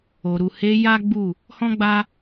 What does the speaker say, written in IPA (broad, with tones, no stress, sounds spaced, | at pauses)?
o˨ ɾ u˨ h e˧ j a˦ ɡ͡b u˦˨ | h ɔ̃˦ ɡ͡b a˦